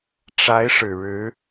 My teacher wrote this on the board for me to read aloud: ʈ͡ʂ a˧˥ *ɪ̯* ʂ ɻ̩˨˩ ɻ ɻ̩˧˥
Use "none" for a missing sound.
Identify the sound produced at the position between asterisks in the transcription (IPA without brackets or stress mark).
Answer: ɪ̯